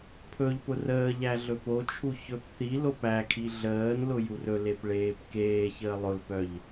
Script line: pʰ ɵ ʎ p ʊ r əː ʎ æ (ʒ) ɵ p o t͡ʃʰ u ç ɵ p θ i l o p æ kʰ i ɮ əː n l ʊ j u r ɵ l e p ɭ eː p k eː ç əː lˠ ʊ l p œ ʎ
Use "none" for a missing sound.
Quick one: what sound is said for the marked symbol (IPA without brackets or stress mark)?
ɮ